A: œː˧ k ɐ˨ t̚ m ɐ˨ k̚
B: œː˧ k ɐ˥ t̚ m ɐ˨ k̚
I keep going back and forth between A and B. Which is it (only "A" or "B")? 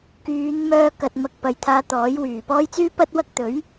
A